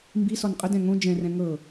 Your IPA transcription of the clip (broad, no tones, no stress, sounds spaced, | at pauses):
m b i s ɔ n qʼ ə d ɛ̃ ŋ õ d͡ʒ ɛ̃ r ɛ̃ ŋ ɤ